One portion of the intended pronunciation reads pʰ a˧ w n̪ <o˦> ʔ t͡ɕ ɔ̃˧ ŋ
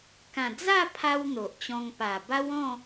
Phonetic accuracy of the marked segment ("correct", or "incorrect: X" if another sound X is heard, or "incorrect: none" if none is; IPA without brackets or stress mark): incorrect: o˨